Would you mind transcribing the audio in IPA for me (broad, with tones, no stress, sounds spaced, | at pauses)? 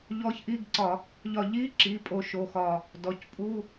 ʎ ɔ˧˥ ç ʔ i˧˥˧ ɡ ǀ ɒ˧˩˧ | ʎ ɒ˧˩ ʎ i˧˥˧ ǁ i˩˧˩ pʼ o˧ ʃ o˩˧˩ x ɒ˧˩ | d ɔ˩˧˩ c pʼ u˧˥˧